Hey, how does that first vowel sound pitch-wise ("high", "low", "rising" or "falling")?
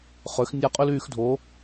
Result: rising